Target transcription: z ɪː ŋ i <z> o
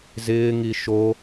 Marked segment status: incorrect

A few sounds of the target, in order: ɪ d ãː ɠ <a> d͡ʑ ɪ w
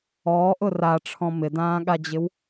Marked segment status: correct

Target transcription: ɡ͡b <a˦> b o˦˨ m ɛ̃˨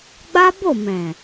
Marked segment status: correct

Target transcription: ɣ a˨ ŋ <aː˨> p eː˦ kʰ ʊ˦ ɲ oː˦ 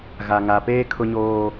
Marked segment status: incorrect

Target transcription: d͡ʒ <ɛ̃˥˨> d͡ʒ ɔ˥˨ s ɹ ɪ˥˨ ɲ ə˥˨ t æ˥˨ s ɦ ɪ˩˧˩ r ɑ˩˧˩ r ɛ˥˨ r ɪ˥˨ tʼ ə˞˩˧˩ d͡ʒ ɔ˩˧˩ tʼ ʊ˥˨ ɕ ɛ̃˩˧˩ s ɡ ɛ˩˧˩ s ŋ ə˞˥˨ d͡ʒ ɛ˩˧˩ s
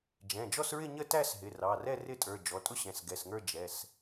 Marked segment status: incorrect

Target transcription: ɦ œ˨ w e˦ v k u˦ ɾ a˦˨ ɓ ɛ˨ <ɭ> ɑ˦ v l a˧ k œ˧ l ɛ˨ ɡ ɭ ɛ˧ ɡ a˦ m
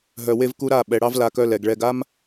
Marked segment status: incorrect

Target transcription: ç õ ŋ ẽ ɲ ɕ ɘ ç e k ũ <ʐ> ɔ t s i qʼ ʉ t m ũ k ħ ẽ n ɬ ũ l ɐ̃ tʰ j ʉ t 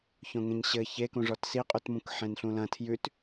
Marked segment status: correct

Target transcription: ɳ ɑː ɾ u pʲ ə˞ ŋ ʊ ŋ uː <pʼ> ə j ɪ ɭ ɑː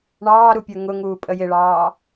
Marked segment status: correct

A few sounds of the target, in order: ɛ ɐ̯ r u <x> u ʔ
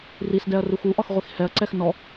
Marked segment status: correct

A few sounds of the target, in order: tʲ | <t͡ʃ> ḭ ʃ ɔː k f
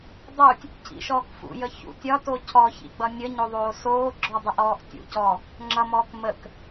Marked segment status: incorrect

